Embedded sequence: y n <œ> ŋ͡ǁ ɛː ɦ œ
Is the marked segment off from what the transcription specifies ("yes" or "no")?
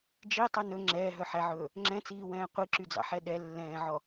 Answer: yes